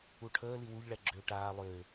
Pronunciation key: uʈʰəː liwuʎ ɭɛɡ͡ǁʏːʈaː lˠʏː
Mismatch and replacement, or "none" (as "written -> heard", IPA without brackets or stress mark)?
none